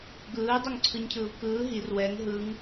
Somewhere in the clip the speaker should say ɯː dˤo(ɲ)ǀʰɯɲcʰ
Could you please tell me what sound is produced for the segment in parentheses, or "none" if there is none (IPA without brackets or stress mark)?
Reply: ŋ